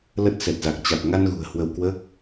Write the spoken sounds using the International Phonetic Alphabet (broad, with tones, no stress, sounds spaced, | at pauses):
l ə˦˥ t̚ s ɛ˨˩ t̚ z a˨˩ k̚ t͡ɕ a˨˩ t̚ ŋ a˧ n ɣ ṳ˨˩ ə̯ h w ə˧ w k w əː˦˥ k̚